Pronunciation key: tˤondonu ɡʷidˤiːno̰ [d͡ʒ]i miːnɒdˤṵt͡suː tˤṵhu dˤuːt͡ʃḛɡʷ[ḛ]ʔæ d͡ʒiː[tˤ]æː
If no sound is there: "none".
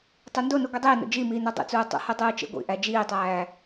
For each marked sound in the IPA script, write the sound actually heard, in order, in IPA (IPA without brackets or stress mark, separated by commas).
d͡ʒ, ḭ, tˤ